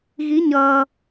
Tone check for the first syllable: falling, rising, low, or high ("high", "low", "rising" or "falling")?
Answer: rising